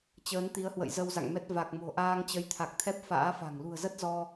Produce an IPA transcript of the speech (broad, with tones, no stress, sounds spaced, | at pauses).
t͡ɕ əː˨˦ n t̪ i˨˦ ə̯ h w ə̰˧˨ j z ə˧ w z a̰˧˨ ŋ m ɛ˦˥ t̚ v a˨˩ k̚ m o̤˨˩ ʔ aː˧ ŋ t͡ɕ ə˨˦ j t̪ʰ a˨˩ k̚ t̪ʰ ɛ˦˥ p̚ f a̰ː˧˥ f a̤˨˩ ŋ l ṳ˨˩ ə̯ z ə˦˥ t̚ z ɔ˧